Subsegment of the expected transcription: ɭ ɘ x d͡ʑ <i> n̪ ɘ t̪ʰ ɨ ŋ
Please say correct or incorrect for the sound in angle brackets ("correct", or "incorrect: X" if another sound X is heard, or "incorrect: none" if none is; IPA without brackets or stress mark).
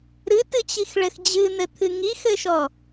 incorrect: ɨ